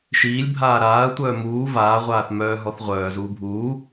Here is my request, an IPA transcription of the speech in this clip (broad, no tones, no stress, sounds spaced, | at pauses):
ʃ iː lʲ bʱ aː ɾ aː ɐ̯ tʷ œː m uː v aː ʁʷ aː θ m œː ɦ ɔ θ ʁʷ œː z uː bʱ uː